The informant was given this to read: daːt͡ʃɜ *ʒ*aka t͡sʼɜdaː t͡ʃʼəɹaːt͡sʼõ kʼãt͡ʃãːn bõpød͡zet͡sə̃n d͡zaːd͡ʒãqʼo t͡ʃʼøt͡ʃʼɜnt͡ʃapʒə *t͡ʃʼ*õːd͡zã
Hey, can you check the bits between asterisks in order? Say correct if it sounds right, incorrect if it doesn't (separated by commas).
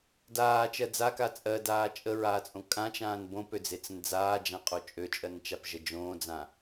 incorrect, incorrect